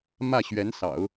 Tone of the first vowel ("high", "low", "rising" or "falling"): falling